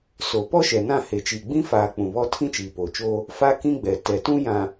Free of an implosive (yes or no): yes